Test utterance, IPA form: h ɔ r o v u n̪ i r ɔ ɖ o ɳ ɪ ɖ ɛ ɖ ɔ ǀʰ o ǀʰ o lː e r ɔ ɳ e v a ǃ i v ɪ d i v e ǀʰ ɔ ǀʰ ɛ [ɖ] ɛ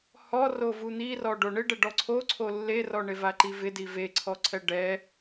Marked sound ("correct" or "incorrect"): correct